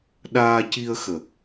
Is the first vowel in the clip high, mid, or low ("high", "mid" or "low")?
low